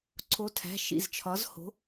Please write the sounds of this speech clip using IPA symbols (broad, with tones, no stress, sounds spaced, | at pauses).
ǀʰ o˨˥ tʰ æ̤˩˧˩ ʃ ḭ˩˧˩ z t͡ʃʰ ɒ˨˥ z h o̤˨˥